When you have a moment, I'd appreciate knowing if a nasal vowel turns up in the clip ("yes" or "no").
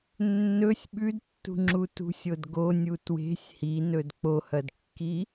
no